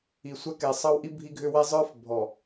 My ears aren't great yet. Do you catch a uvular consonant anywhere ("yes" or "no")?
no